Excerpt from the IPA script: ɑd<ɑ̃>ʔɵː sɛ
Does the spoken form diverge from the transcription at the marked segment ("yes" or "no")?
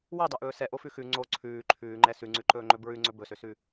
yes